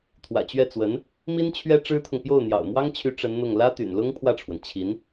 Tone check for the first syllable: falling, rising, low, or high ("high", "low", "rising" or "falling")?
low